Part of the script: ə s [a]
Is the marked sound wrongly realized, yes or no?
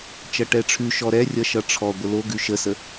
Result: yes